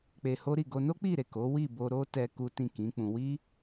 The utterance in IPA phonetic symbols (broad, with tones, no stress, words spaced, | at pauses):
k͡pe˧ho˦ɾi˦˨ ɡo˧no˦k͡pi˦˨ ɾe˨ ko˨˦ wi˦˨bo˧ ɾo˦ tɛ˧ ku˦tĩ˦˨kĩ˨˦k͡pũ˧ wi˦